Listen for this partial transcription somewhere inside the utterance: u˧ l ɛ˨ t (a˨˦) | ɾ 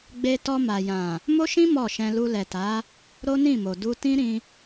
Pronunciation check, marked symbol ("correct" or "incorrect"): correct